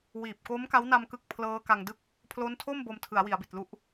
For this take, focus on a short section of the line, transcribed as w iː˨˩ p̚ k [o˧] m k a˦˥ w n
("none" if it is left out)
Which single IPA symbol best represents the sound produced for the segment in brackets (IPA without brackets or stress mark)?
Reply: o˦˥